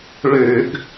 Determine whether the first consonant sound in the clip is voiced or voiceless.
voiced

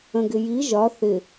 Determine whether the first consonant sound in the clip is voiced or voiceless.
voiced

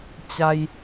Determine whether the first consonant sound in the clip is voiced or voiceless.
voiceless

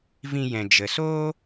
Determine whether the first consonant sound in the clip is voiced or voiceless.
voiced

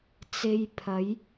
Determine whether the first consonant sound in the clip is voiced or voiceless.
voiceless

